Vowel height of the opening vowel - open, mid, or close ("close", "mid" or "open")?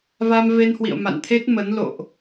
open